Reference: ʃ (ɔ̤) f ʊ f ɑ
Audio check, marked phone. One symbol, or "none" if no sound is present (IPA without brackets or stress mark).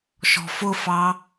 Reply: ɔ̤